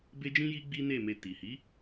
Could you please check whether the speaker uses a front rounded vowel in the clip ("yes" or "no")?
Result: no